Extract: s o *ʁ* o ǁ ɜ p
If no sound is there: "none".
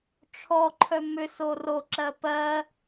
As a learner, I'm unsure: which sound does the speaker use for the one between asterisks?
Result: r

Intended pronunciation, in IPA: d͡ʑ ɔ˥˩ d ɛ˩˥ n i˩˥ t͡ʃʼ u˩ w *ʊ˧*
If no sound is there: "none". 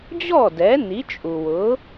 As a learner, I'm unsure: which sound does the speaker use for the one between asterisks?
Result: ʊ˩˥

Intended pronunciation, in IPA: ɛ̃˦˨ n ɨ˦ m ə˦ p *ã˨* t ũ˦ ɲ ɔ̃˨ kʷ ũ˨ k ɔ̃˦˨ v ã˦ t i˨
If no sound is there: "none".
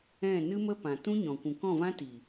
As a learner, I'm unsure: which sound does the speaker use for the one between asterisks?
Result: ã˨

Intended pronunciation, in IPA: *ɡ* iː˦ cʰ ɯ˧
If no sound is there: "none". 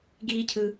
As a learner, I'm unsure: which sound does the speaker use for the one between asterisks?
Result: ɡ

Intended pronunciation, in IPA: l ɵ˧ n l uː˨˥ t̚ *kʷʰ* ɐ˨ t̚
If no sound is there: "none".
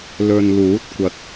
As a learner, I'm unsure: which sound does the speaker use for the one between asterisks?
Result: kʷ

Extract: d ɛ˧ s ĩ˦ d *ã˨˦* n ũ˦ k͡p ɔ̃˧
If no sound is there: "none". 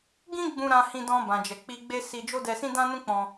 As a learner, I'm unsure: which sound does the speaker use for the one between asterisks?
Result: ã˦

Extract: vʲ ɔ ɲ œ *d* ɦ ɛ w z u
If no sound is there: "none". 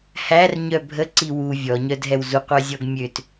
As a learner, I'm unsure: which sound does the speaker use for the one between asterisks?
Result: d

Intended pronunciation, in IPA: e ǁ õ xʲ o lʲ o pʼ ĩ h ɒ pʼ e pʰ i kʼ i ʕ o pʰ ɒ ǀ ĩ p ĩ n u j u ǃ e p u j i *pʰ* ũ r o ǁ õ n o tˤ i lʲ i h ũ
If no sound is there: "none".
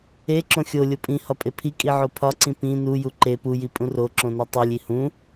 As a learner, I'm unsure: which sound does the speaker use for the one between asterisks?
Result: pʼ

